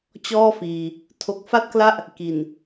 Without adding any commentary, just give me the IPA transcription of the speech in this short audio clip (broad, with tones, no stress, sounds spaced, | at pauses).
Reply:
t͡ɕ ɔː˥˩ f iː˧ | tʰ o˨˩ k̚ f a˥˩ t̚ k l a˥˩ ʔ | k i˨˩ n